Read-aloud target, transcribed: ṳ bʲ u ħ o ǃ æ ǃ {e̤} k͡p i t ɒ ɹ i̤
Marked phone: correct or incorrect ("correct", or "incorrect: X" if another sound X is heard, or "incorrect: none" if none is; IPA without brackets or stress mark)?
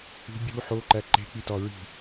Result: correct